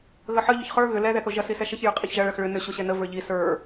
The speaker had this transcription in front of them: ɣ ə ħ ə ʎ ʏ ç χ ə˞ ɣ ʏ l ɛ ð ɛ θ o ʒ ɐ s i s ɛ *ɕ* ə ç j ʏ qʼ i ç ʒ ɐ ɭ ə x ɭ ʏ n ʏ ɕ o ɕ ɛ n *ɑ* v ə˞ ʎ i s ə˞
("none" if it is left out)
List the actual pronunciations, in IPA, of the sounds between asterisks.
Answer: ʃ, ə

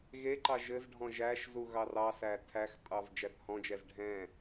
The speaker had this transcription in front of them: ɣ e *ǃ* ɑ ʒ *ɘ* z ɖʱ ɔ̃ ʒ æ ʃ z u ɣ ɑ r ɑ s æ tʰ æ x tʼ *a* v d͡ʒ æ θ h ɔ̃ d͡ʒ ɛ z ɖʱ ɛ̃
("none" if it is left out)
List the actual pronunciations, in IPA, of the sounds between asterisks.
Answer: ǃ, ɘ, ɑ

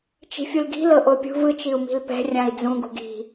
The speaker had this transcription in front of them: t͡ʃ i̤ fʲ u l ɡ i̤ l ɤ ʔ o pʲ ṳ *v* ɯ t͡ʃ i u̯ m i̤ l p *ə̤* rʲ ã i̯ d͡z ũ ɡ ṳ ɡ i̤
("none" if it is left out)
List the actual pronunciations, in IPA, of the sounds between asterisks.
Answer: v, ɛ̤

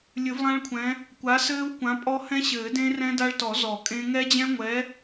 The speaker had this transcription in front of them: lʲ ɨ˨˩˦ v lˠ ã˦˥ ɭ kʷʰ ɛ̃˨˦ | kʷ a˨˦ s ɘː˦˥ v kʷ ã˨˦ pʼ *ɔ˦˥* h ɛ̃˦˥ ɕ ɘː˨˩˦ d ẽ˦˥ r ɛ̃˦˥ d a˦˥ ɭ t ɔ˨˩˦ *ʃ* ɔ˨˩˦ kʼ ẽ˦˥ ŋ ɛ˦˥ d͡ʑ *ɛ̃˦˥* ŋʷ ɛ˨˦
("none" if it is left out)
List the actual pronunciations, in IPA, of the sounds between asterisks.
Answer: ɔ˦˥, z, ɛ̃˦˥

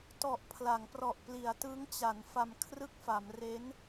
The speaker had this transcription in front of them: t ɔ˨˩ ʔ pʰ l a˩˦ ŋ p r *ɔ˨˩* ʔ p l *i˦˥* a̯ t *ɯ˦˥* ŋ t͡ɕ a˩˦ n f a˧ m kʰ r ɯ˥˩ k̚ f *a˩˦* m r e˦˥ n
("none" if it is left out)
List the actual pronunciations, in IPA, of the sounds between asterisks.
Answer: ɔ˨˩, i˩˦, ɯ˦˥, a˩˦

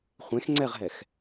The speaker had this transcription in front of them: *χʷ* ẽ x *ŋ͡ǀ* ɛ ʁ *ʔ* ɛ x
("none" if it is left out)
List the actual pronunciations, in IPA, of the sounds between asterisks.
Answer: χʷ, ŋ͡ǀ, ɦ

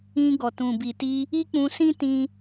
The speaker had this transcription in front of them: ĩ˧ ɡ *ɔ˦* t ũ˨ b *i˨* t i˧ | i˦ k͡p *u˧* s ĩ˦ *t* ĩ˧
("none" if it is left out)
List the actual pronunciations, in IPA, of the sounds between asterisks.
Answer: ɔ˨, i˨, ũ˧, t

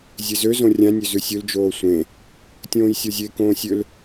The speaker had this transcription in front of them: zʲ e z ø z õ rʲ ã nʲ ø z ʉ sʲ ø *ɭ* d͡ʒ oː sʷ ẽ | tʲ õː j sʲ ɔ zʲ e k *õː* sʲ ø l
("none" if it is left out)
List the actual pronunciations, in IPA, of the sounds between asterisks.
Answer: l, õː

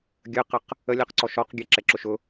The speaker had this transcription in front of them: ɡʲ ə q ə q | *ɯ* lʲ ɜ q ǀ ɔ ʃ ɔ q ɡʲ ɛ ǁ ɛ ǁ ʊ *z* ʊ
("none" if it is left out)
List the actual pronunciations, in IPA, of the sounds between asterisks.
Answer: ə, ʃ

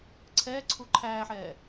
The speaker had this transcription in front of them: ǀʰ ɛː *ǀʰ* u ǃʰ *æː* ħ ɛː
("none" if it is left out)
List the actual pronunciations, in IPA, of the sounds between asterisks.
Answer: ǀʰ, æː

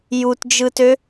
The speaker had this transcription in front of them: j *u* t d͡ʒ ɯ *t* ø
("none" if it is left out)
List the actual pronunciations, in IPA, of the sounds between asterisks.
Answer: u, t

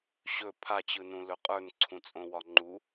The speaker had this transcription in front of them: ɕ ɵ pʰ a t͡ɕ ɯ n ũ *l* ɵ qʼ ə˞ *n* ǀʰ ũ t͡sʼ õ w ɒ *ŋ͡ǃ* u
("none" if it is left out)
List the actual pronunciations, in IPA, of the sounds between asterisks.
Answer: l, n, ŋ͡ǃ

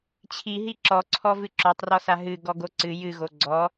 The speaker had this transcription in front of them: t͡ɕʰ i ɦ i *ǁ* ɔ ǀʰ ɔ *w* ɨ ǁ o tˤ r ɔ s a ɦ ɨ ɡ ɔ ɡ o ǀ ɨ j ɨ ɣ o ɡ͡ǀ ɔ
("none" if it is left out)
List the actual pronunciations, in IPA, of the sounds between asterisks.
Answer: ǁ, v

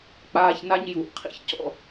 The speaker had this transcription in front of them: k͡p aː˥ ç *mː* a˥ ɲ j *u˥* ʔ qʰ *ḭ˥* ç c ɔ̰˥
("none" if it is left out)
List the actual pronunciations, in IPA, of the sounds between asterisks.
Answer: n, u˧, ḭ˥

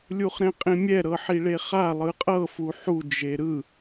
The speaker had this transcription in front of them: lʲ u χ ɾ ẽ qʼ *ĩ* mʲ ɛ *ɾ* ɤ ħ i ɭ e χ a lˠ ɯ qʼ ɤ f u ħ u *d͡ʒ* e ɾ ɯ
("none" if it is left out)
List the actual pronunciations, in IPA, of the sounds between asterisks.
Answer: ĩ, ɾ, d͡ʒ

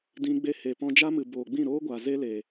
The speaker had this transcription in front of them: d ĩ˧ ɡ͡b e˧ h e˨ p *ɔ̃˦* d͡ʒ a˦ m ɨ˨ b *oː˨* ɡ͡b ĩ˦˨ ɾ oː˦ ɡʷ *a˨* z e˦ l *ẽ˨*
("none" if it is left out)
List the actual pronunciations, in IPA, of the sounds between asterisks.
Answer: ɔ̃˧, oː˨, a˨, e˨

